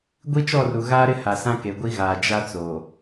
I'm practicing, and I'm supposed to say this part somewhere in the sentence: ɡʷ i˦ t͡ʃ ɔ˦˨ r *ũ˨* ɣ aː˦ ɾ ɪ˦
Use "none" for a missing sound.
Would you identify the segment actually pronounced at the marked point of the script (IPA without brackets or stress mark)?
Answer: u˨